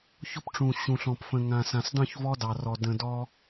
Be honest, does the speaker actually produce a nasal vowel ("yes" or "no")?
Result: yes